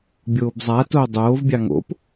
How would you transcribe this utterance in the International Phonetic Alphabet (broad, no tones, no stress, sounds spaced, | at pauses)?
bʲ oː b zˤ a t oː dˤ oː v bʲ ɑ ŋ o̰ p